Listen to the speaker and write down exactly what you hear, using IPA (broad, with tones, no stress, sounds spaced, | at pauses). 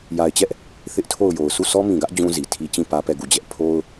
j a˨ ɪ̯ t͡ɕ ɛ˦ ʔ | θ ɪ˦ ʔ tʰ o˦˨ ʊ̯ j o˨ ʊ̯ sʰ u˦˨ s ɔ˦ m ĩ˨ ɡ ä˦ ʔ d͡ʑ ũ˦ z i˨ tʰ i˦ t͡ɕ ĩ˦˨ p ä˦ p ɛ˦˨ ɡ u˦˨ d͡ʑ ɛ˦ ʔ pʰ o˦ ʊ̯